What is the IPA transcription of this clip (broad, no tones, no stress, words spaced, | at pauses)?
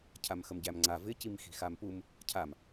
cʰamxəmɟæmŋ͡ǀa vɪ cimxi̤xampum | cʰam